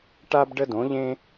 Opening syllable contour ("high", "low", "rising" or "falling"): high